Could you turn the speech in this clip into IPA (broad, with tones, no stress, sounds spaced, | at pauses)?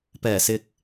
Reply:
p ɛː˨˩ s ɪ˨ k̚